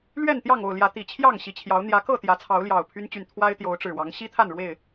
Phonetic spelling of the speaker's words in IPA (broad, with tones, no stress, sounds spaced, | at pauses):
l ɥ ɛ˥˨ n t̪ j ɑ˥˨ ŋ o˥˨ ʊ̯ l j ä˨˦ t̪ i˨˩ t͡ɕʰ j ɑ˥˨ ŋ ɕ i˨˩ t͡ɕʰ j ɑ˨˦ ʊ̯ n̪ j ä˨˦ k ɤ˥˨ t̪ j ä˨˦ t͡sʰ ɑ˨˦ ʊ̯ l j ɑ˨˩ ʊ̯ pʰ y˦ n t͡ɕ y˨ n t̪ʰ w a˦ ɪ̯ t̪ j o˨˦ ʊ̯ ʈ͡ʂ ɻ̩˨˩ w ɑ˨˦ ŋ ɕ i˦ t̪ʰ a˥˨ n ɻ w e˥˨ ɪ̯